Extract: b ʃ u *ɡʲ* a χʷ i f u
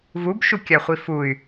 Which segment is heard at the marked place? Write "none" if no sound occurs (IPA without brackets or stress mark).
kʲ